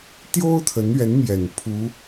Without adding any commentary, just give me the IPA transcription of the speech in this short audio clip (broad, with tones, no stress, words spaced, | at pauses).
t̪jo˥ʊ̯t̪ʰə˧˥nɥɛ˧˥nmjɛ˨˩n pʰu˧˥